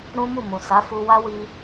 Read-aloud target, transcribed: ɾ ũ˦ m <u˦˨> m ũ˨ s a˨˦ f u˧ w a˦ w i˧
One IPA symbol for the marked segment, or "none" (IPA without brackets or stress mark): u˦˨